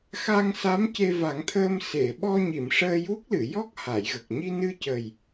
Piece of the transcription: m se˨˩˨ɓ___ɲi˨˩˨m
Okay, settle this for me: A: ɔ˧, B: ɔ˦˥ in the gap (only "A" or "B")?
A